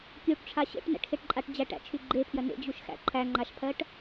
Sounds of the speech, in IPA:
kʲ u ʈ ʈ͡ʂʰ a ɕ ḛ ʈ n æ̰ ʈ x e ʈ ǃʼ a ʈ d͡ʑ æ ʈ æ̰ t͡ʃʰ y ɡ͡ǃ e pʰ j ɜ n ḛ d͡ʑ u ʃ x æ̰ ǃʰ æ ŋ͡ǃ a ʃ pʰ ɜ ʈ

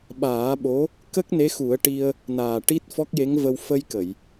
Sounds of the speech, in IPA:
ɓ aː˨˩˦ ɓ o˧˥ | k ə˦˥ k̚ n e˧˥ x u˨˩˦ ə̯ ʈ i˧ ə̯ | n aː˨˩ ʈ i˦˥ t̚ f ɔ˦˥ k̚ j e˧˥ ŋ v ə˧ w f ə˧ j k ə˨˩˨ j

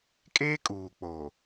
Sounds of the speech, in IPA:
kʼ eː˦ kʼ uː˨ k͡p oː˨

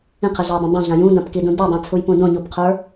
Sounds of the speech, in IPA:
ĩ qʰ ɘ ɮ a j dˤ ĩ dˤ õ ɮ ã j ũ d ã p k i d ũ d i dˤ ã t͡sʰ u j p ũ d õ ɲ u p qʰ ə˞

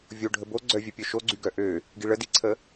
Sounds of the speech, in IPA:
vʲ o ɖʱ ə b o ɡ͡ǀ œ vʲ œ pʲ œ ʃ o ɡ͡ǀ y ɡ œ ʔ ø | ɡ i ɭ ə d i ǀʰ ə

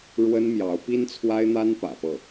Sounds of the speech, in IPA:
ɻ w ə˥ n m j ɑ˧˥ ʊ̯ p i˥ n t͡sʰ w a˥ ɪ̯ n̪ a˥ n p ä̰˨˩ f ɤ˥˩

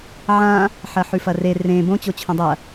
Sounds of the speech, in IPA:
ʕ ã | ħ ɐ ħ ʉ f ɐ r e r ẽ b õ t͡ɕ o t͡ɕʰ õ dˤ ɐ

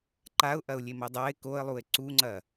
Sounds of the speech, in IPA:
ǃ a ʊ̯ ʔ ɐ ʊ̯ lʲ e m ɐ dˤ a ɪ̯ k o ə̯ lˠ u ɪ̯ ǀ u ŋ͡ǀ ɐ

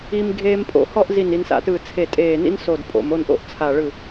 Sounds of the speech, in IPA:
i˧ m ɡʱ eː˧ m pʼ o̰˩˧ h ɔ˥˧ ʔ z i˧˩ n i˩˧ n s a̰˧˩ t ɯː˧˩ t͡sʰ e˧˩ tʼ eː˧˩ n ḭ˥ n s o˧˩ d pʼ o̰˩˧ m o˥˧ n ʔ o̰˥ ʔ t͡sʰ a˧˩ ɭ ɯ˧˩

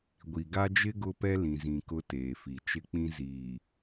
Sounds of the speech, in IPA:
ɡʷ i˨ ɡ a˦ d͡ʒ ɪ˦ ɡ ʊ˦ p ɛ˦ l ĩ˨ z ĩ˨ k ʊ˦ t eː˨ f i˨ t͡ʃ ɪ˦ k͡p ĩ˦ z iː˨

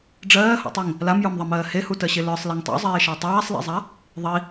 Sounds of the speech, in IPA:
ɖ͡ʐ ɜː h o̰ tˤ i ŋ | l a m j ə˞ m ðˤ ɜ m ɜː h e h u t ɜ ɕ e l ə˞ sˤ l e ŋ tˤ o̰ zˤ eː ʃ a tˤ aː sˤ l ḛ zˤ a | ðˤ i

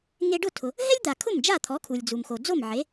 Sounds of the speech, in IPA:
ŋ e˧ ɖ ʊ˥˩ tʰ ʊ˩ | ɦ ɛ˥ lʲ d̪ a˩ kʰ ʊ˥˩ m d͡ʒ a˥˩ t̪ʰ ɔ˩˥ kʰ u˩ lʲ d͡z u˩ m x o˩ d͡z o˥˩ m ʕ e˩˥

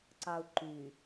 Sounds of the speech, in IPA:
ǀ ɑ u̯ ǃ y

